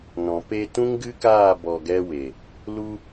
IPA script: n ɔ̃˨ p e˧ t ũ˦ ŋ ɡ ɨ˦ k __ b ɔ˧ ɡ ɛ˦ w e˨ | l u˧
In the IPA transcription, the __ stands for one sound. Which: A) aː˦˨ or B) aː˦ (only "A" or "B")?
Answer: A